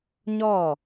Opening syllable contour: falling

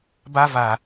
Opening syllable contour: high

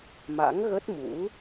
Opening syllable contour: rising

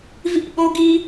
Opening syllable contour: falling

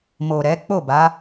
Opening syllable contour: low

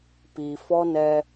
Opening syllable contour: low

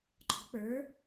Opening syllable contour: rising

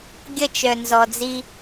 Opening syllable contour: falling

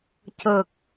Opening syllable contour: low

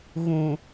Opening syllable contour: low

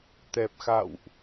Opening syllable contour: low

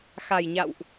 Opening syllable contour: low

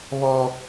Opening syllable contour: high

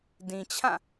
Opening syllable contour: low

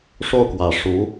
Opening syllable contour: falling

